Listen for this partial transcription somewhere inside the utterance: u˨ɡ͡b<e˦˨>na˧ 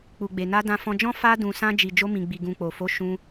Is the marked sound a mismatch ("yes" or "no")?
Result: yes